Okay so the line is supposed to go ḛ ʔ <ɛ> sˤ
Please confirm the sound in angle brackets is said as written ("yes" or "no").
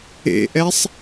yes